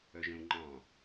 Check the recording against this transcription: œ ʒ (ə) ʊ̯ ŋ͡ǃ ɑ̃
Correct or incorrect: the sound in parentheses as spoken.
incorrect: ə̃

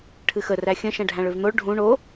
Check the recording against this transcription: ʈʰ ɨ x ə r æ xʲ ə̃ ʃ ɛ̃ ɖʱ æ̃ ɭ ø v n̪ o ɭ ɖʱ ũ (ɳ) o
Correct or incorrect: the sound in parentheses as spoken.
correct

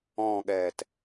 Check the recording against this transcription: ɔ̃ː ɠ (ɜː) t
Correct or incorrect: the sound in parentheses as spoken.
incorrect: ɛː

